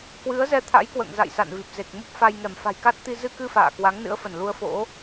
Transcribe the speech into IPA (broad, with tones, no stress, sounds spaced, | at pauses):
k w ɨ˨˦ ə̯ z ɛ˧ t̪ʰ a̰˧˥ j k w ə̰ː˧˨ ŋ z a̰˧˨ j s a̰˧˨ n v i˨˩ p̚ z e˨˩ k̚ m u˦˥ p̚ f a˧ j ŋ ɛ˧˩ m f a̤˨˩ j k a˦˥ t̚ t̪ i˧ z ɨ˧ k ɨ˧ f a̰ː˧˨ k w a˨˦ ŋ n ɨ̰˧˥ ə̯ f ə˧˩ n l u˧ ə̯ f o̰˧˥